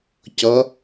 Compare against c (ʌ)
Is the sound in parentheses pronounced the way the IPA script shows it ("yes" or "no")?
yes